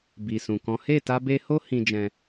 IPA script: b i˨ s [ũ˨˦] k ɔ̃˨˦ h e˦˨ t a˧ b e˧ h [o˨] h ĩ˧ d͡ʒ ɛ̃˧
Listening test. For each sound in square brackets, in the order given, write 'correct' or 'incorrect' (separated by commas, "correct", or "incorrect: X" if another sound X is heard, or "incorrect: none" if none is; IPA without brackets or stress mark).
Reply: incorrect: ũ˨, incorrect: o˦